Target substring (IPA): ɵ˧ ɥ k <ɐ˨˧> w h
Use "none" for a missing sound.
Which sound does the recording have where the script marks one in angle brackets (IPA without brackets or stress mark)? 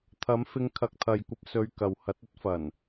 ɐ˨